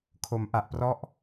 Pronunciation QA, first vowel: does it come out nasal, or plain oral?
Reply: oral